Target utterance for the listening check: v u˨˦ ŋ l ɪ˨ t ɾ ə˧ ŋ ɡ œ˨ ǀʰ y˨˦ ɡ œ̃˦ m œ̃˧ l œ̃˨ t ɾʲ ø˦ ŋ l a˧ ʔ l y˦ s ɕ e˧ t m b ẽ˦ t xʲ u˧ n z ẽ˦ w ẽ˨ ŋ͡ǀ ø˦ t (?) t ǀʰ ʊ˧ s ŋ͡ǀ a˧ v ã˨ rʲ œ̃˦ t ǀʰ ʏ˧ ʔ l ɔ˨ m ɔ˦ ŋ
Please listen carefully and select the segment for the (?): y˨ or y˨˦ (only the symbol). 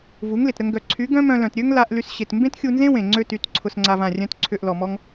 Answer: y˨˦